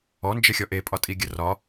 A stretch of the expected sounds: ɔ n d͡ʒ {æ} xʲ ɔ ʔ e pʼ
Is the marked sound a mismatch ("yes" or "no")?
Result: yes